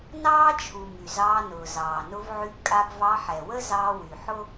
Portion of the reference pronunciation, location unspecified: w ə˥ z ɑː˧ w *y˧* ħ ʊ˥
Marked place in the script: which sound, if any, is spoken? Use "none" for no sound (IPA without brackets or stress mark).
y˩